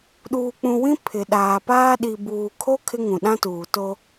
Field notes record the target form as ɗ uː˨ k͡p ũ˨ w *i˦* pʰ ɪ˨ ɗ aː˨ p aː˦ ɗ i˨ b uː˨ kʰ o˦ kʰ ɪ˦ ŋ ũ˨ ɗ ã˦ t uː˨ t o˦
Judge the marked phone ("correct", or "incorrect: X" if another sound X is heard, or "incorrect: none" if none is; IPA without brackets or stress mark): incorrect: ĩ˦